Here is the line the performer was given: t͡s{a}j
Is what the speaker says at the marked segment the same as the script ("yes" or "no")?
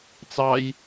no